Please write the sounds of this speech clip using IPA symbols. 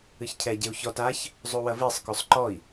ɨçcʰɛɟeu̯ çɔt aç | zˤuwɐvisˤkosˤ ǃɔi̯

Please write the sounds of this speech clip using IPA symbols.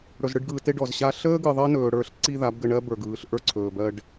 ɽɵ˨zɽɯ˧ɖɡɯː˨te˧ ɖɔ˨zɕa˦ ɬəː˦ɡɯ˨ ðˤəː˦nɵː˨ ɽə˞˦ɬ ǀi˦ða˨˦bɡə˧ɳɜ˦ bə˞˨ɡɯː˨ɬ ʔə˞˦ǀʰɵː˨ bɜ˧ɖ

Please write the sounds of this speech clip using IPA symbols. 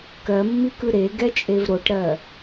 kɜmːikɯ ɾeɡɛt͡ʃʼev ɾoʈɾɜ

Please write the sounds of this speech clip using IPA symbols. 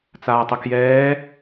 t͡saːtˤəkjɛː

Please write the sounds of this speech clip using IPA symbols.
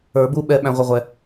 ə˞˨˩˦bu˦˨ ɓɛ˨ ɓæ̃˨ʁʷə˨ʁʷɛ˨

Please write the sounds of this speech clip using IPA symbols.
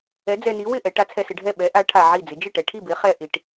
ɛ˨˥d͡zɛ˧ni˨˥ wɪ˥˩ʔɛ˩˧ ʈa˨˥t͡sʰɛ˧sɪ˩˧ɖʱɛ˥˩ ɓɛ˨˥ʔa˨˥ ʈʰa˧ʕi˥˩ d͡zɪ˩˧d͡ʒɪ˥˩ʈɛ˩˧ʈʰi˥˩ bɪ˨˥χɛ˧ ʔi˩˧ʈ

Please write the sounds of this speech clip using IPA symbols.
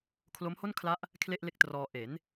kʰlo˦˥mho˥˩nkʰla˦˥ʔ | kʰle˥˩ʔle˥˩k̚trɔː˧ ʔe˩˦n

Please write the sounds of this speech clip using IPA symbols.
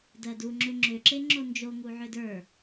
dɜduŋ͡ǁʏ ŋ͡ǁʏ ǁeŋ͡ǁond͡ʒo ŋuʕʏdə˞

